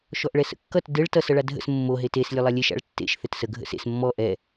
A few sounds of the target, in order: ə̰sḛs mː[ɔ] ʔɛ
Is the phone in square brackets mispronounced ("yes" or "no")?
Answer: no